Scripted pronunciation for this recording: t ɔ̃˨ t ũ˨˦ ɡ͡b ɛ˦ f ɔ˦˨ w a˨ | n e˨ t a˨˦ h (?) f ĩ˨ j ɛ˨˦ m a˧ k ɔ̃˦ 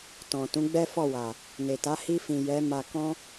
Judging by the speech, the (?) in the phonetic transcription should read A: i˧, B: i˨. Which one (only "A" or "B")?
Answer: A